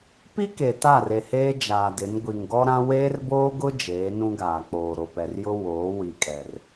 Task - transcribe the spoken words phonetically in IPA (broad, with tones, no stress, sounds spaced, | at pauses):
p i˦ k e˨ t a˦˨ r e˨ h eː˦ d͡ʒ aː˨ d ɪ˨˦ n ɡʷ i˨ ŋ ɡ ɔ˦ ɾ ã˦ w eː˦ r b oː˦ ɡ ʊ˦ d͡ʒ eː˨˦ n ũ˦ ɡ aː˨ k͡p oː˨ ɾ o˨ p ɛ˨ r j ʊ˦ w oː˨˦ w i˨ kʼ ɛ˨ r